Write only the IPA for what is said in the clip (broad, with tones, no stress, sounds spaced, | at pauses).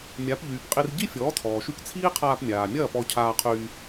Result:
mʲ a˩˥ p ʎ yː˩ p qʼ i˧ r ɟ i˥ fʲ ɔː˩˥ tʰ ɔː˩ ʃ y˧ k t͡sʰ iː˥ qʰ aː˧ p mʲ aː˩ mʲ ɐː˥˩ p ɔ˧ cʰ aː˧ qʰ yː˧